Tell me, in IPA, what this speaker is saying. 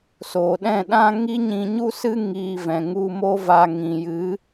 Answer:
soː˨ɗɛ̃˦˨ɗã˦ ŋi˦ɲĩ˧ɲu˦sɨ˦ ŋiː˧vɛ̃˨ ŋu˧mo˦va˧ ŋĩ˨jɨ˨˦

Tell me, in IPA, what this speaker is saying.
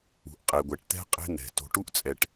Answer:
ṳ˨ʔqʼe˨ɡʷɛ˨ʈt̪ɛ̤˦ qʼe̤˦n̪ɛ̤˨ to̤˨ʈu˦ʔt͡sʼɛ˨ʈ

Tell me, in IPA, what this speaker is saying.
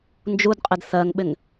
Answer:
nd͡ʒudqʼɪd θɜŋɓɪŋ

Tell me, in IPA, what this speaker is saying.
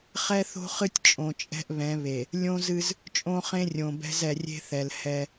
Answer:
χɛ˦θo̤˦χɨ˦tʲ t͡ʃʼõ˨t͡ʃʼɛ̤˦ʔβɛ̃˨˦βe˨ | lʲõ˦zɨ˦z | t͡ʃʼõ˦χẽ˦rʲõ˨bɛ̤˦z ɛ˨rʲe̤˦θɛ˨l hɛ˦

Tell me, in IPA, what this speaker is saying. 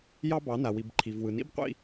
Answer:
jɑ˦ bɑ˨˦na˨wi˨b ǃʰi˨vwɯ˨ nḭ˦bqʷḭ˦˨

